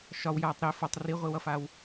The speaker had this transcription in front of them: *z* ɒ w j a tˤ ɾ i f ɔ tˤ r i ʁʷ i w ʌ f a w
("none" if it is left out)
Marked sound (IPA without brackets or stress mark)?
ʃ